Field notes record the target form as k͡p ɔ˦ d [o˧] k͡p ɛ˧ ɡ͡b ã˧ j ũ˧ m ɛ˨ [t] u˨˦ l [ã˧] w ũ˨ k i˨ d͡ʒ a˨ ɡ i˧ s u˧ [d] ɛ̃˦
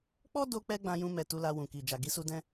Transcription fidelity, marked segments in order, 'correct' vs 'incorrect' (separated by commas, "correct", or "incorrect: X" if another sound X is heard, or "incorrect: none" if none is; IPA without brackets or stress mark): correct, correct, incorrect: a˧, correct